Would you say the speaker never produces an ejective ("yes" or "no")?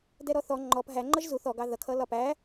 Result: yes